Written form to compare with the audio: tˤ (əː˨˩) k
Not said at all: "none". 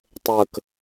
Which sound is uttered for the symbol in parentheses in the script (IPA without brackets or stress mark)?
əː˨˩